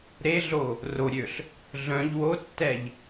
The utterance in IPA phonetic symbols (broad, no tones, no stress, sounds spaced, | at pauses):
ɾ e ɮ o | r o ɾʲ ø ɬ | ɮ œ̃ ʎ w o tː ɛ ʎ